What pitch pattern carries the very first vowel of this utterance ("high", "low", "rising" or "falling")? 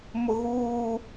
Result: low